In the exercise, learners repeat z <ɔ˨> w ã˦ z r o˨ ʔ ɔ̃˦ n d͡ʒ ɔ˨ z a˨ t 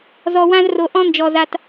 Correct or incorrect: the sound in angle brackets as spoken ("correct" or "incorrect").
correct